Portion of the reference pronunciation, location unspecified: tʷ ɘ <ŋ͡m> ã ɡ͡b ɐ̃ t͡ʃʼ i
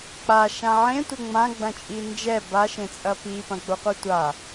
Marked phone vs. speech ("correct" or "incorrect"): correct